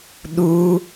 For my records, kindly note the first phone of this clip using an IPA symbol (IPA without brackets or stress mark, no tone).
ɗ